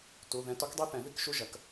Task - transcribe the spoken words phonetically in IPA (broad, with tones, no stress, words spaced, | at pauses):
tu˩˧˩ðɛ̃˧˥ tɔ˧˥kdˤi˥˧θɛ̃˨˩˦ ði˥˧kʃu˥˧ʒɐ˩˧˩k